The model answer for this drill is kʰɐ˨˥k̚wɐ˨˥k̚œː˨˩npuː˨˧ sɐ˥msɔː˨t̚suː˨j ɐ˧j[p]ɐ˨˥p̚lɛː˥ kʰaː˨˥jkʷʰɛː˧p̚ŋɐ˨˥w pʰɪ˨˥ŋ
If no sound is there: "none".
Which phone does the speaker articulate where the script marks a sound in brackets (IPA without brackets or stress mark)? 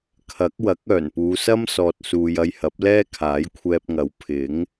h